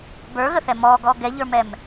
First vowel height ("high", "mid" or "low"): mid